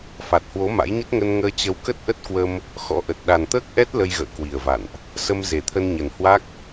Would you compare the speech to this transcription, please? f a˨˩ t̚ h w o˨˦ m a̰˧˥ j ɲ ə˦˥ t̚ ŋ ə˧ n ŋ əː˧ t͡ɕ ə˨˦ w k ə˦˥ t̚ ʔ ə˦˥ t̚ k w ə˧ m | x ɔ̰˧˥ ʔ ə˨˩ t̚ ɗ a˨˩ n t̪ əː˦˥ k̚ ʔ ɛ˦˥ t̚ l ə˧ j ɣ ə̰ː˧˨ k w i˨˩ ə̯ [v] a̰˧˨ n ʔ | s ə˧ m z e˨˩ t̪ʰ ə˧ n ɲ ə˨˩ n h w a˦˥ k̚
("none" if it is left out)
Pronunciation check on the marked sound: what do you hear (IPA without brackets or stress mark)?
v